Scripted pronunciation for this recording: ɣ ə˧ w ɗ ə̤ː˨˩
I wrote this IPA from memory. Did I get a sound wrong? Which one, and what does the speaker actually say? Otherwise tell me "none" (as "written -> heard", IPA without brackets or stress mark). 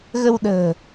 none